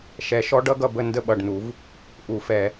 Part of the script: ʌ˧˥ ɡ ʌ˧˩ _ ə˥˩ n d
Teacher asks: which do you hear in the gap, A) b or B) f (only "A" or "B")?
A